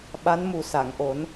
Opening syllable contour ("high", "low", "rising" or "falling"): rising